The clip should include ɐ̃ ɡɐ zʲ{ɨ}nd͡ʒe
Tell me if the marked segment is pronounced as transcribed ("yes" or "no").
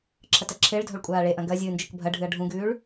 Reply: no